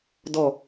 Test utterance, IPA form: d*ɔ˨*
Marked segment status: incorrect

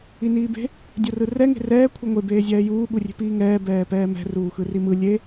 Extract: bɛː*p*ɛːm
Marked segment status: correct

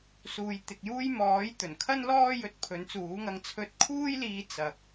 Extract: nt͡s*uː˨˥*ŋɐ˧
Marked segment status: correct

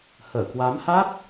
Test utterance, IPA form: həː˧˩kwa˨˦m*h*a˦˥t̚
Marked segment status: correct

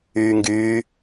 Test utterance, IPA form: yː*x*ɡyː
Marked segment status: incorrect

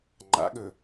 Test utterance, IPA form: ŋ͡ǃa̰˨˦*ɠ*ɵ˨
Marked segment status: correct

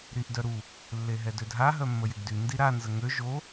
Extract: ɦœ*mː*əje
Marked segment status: correct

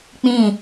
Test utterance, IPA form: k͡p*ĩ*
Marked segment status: correct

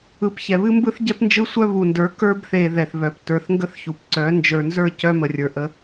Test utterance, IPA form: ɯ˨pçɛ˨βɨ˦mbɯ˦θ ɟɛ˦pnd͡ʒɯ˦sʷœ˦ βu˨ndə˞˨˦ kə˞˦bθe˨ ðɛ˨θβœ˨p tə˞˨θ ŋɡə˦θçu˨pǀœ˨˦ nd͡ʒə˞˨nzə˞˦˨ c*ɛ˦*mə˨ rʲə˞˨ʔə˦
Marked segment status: incorrect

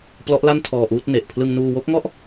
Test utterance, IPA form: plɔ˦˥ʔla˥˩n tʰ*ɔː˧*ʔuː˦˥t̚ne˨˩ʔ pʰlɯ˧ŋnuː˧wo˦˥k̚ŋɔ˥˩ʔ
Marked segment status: correct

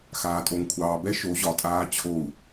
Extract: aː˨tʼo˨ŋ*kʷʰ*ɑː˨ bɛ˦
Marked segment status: correct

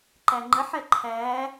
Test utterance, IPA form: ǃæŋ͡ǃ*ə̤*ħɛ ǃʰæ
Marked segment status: incorrect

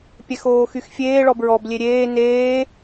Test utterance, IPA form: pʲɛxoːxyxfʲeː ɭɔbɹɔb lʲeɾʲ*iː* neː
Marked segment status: incorrect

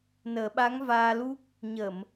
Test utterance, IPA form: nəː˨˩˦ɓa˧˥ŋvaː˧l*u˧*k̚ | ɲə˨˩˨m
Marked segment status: incorrect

